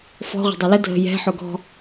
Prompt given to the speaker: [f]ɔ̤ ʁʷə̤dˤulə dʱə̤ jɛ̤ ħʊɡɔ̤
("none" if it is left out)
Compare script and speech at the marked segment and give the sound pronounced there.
f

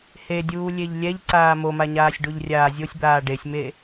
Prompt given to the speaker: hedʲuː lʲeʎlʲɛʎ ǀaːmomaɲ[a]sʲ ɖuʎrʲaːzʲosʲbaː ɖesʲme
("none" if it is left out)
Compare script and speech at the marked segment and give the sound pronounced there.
aː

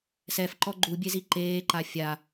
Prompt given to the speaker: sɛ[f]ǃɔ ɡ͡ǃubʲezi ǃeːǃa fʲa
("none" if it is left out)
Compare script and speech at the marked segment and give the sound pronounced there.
f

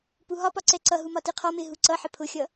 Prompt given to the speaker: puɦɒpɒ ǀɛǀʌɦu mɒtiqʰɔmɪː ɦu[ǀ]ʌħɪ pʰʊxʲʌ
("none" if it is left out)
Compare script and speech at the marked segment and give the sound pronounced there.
ǀ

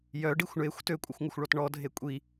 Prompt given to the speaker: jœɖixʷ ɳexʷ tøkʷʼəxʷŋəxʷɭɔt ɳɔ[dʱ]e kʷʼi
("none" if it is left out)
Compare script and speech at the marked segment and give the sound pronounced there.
dʱ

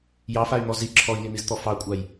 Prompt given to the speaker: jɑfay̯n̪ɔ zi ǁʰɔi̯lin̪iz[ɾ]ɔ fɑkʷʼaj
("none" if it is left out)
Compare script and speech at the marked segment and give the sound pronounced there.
t̪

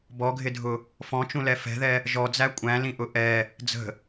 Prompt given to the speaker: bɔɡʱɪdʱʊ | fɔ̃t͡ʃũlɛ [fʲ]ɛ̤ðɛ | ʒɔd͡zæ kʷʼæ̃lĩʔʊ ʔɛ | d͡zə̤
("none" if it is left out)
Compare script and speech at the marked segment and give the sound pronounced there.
f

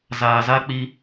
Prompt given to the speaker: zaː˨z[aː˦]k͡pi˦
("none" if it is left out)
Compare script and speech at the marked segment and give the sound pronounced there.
a˦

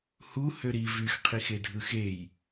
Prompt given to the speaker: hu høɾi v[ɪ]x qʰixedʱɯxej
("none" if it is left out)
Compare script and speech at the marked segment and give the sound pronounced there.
y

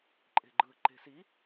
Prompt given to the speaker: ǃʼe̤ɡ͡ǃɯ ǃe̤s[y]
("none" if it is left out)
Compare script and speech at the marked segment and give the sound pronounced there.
i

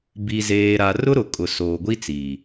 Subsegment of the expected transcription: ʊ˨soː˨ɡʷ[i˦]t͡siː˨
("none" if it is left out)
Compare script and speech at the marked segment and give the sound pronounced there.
i˦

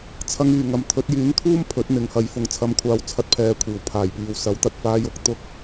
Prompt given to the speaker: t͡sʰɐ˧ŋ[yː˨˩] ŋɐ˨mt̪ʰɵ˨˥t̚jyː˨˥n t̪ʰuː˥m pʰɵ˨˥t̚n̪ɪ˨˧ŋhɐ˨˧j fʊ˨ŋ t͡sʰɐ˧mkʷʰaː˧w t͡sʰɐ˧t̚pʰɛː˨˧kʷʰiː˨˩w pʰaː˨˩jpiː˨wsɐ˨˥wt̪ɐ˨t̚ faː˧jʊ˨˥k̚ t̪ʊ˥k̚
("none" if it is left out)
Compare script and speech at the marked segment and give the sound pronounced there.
yː˨˩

